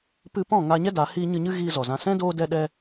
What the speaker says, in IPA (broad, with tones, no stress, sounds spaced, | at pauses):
p ɨ˧ p ɔ̃˦˨ ŋ aː˧ ɲ ɛ˦ d a˨˦ h iː˦ ɲ ɨ˧ ɲ ɨ˦ ɣ iː˧ z ɔ˨ z ã˧ s ɛ̃˦ d oː˧ d ɛ˧ ɗ ɛ˧